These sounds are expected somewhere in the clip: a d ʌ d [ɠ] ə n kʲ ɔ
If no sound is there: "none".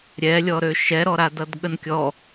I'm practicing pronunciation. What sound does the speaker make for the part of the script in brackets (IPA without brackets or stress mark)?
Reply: ɠ